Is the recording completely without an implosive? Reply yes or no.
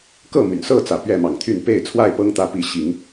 yes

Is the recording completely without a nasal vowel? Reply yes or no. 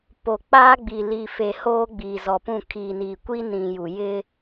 no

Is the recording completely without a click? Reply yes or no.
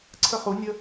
no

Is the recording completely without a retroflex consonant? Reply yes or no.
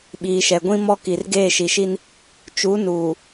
yes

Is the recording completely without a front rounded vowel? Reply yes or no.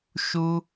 yes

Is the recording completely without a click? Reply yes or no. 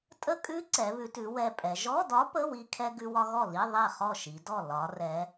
no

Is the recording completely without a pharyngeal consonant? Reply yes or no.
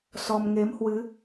yes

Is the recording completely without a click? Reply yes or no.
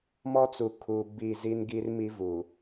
yes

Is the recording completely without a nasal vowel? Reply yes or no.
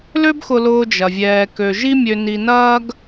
yes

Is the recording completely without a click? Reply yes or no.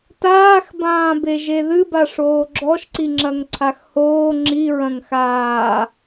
no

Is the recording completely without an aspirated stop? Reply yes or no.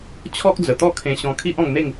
no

